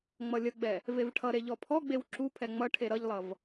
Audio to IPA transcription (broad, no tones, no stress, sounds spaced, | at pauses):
ŋ͡m ʌ lʲ ə ɡ͡b ɛ | v e v ʈʰ ʌ ɾ e ʎ ɔ pʰ ɔ ɡ͡b e w ǁ u pʰ ɛ ŋ͡m ʌ ʈʰ e ɾ ʌ ʎ lˠ ʌ v